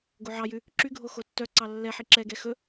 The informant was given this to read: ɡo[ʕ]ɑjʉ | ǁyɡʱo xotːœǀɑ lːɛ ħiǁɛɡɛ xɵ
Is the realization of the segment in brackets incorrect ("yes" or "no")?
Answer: no